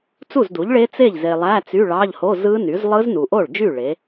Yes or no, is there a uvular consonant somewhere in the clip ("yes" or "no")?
no